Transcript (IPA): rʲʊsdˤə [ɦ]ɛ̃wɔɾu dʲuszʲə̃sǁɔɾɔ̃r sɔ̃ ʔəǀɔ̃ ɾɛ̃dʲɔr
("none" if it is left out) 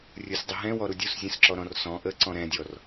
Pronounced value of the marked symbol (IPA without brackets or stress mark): ɦ